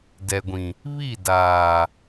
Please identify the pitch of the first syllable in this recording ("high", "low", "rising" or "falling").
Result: low